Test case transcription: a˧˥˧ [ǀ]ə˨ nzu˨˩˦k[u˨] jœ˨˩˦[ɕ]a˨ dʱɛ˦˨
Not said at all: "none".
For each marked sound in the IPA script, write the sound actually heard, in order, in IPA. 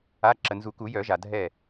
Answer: ǁ, u˨˩˦, ʒ

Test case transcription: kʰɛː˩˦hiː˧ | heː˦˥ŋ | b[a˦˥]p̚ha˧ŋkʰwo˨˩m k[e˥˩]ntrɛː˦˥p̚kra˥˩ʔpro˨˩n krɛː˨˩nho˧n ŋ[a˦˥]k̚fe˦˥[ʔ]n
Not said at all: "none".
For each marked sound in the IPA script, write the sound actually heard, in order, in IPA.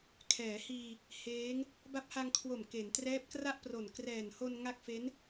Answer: a˦˥, e˩˦, a˦˥, none

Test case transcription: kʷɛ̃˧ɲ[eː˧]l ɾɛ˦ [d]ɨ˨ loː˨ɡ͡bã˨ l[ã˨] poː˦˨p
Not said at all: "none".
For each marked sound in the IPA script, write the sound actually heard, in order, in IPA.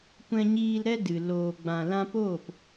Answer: iː˧, d, ã˦

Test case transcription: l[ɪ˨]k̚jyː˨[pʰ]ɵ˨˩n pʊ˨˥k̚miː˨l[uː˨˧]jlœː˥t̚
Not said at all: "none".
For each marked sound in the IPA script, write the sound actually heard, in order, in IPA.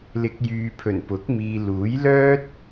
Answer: ɪ˨, pʰ, uː˨˥

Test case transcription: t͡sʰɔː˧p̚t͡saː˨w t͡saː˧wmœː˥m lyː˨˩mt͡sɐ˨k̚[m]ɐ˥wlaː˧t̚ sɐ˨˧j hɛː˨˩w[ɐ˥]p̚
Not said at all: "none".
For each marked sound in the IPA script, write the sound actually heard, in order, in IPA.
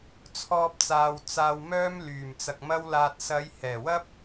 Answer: m, ɐ˥

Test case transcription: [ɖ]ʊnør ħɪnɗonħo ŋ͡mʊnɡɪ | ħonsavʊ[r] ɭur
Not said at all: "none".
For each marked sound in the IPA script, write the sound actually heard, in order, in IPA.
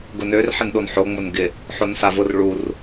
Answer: ɡ, r

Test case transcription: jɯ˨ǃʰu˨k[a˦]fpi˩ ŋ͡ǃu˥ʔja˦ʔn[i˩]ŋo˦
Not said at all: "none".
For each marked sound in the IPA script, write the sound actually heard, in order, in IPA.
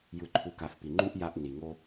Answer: a˨, i˩

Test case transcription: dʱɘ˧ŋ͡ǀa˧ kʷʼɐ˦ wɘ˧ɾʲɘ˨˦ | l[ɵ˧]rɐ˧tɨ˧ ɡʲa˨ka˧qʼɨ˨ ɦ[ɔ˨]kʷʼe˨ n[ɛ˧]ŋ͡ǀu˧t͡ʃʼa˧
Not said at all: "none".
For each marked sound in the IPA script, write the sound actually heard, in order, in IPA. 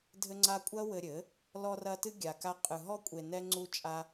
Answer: ɔ˧, ɔ˧, ɛ˧

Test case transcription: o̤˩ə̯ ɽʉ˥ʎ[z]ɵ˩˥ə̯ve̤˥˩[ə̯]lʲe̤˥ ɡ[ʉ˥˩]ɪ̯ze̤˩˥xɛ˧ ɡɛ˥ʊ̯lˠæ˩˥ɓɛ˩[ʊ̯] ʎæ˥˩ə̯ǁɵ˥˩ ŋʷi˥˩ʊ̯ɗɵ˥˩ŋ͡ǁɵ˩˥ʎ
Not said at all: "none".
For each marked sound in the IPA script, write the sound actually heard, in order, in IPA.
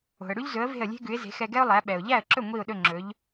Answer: z, ə̯, ʉ˩˥, ʊ̯

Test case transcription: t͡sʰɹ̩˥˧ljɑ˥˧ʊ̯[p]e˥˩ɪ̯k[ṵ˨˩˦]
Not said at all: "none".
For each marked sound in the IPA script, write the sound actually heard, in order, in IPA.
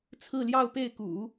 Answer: p, ṵ˨˩˦

